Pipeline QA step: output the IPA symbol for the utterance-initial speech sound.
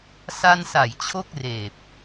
s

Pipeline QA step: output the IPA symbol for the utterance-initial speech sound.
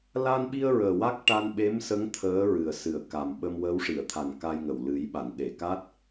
l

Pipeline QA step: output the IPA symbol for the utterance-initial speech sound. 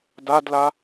d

